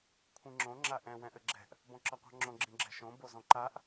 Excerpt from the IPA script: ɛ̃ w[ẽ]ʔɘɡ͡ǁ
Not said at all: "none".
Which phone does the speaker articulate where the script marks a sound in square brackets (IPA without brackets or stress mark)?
ɛ̃